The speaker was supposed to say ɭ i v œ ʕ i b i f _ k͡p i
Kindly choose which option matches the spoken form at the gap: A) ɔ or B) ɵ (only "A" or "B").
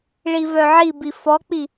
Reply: A